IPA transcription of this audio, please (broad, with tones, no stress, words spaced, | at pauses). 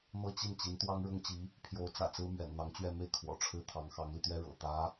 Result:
n̪ɤ˥˧t͡ɕi˥˩n t͡ɕi˧˥nt̪wɑ˥ŋ ɻʊ˥ŋt͡ɕi˧˥ | pʰjo˧˥ʊ̯t͡sä̰˨˩t͡sɹ̩˥ mɥɛ̰˨˩nn̪ɑ˧˥ŋt͡ɕɥɛ˥˧ me˥˩ɪ̯ kʰwɔ̰˨˩ʈ͡ʂʰɻ̩˥ t̪ʰɑ˧˥ŋxɑ˧˥ŋli˧t̪ɥɛ˥ ɻɤ̰˨˩ t̪ä˧˥